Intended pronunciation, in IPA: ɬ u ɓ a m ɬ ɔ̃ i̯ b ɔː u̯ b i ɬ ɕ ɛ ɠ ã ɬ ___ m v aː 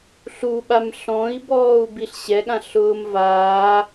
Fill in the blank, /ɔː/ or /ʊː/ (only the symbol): ʊː